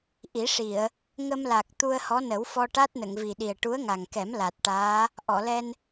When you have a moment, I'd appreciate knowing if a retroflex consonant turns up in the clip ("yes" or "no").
yes